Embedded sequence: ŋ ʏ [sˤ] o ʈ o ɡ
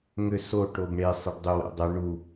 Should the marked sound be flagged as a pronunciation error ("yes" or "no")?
yes